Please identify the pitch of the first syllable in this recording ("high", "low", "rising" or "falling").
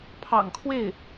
low